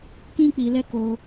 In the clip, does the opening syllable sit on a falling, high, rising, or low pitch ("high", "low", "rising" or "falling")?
high